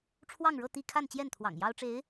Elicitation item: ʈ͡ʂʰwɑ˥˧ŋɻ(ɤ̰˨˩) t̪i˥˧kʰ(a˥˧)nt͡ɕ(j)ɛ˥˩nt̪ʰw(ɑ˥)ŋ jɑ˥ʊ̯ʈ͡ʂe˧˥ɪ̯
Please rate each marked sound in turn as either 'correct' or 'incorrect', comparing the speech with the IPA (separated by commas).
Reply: incorrect, correct, correct, incorrect